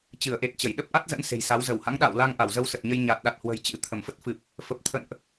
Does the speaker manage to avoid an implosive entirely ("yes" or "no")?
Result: no